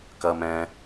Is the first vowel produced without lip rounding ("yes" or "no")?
yes